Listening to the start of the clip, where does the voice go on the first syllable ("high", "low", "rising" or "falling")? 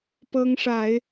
high